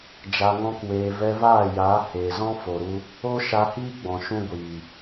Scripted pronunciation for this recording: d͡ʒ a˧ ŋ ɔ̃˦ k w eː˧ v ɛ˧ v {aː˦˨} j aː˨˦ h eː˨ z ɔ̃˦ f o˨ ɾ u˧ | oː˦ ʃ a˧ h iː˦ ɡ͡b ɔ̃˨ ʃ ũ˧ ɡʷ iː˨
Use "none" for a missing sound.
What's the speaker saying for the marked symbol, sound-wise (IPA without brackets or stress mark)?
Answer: aː˦˨